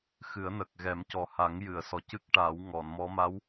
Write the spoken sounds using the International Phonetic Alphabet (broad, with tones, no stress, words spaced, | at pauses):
xɨ˨˩˦ə̯nəː˨˩k̚ ɣɛ˨˩˦mcɔ˨˩ha˨˩˦ŋ jɨ˨˩˨ə̯sɔ˨˩cɨ˦˥k̚ ʈaː˨˩˦wŋɔ˨˩˨nmɔ˧˥ ma˧˥w